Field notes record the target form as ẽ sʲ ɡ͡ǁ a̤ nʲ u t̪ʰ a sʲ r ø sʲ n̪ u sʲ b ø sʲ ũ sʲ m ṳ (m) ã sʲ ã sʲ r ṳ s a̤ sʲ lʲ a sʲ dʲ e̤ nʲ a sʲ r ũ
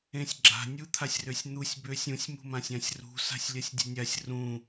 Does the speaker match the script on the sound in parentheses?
yes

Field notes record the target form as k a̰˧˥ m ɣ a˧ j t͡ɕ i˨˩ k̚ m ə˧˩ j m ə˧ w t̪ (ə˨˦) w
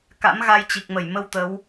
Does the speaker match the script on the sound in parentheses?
yes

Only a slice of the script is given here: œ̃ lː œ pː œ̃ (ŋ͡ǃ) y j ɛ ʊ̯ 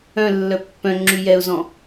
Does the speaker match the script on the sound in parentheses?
no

